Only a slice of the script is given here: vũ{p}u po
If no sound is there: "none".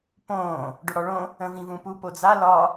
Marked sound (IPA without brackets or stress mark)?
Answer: p